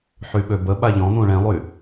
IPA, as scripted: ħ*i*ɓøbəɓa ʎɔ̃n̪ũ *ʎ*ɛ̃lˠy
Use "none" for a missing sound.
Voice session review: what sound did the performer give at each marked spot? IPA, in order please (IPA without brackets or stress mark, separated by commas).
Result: y, ɭ